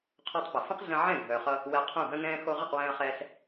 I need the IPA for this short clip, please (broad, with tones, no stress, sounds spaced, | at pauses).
qʰ o˧ tˤ p ə˨ f ə̃˦ q ɮ ə̃˧ ʕ ɛ̃˦˨ ɡʱ œː˨ χ ʌ˧ | w ɛ˧ qʰ ũ˦˨ ɦ ə̃˦ ŋ ɛ̃ː˦ x o˧ ʁ ə˦˨ q w ɛ̃ː˧ ɐ̯ χ ɛː˧ ɬ